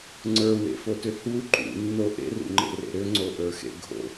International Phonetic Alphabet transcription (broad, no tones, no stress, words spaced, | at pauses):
ŋ͡ǀə˞wḛfotʏ hu ǃṵnːo ʔḛrṵŋ͡ǃḛrḛ ɾʏŋ͡ǀoʔə˞xḛ ɡʱo̰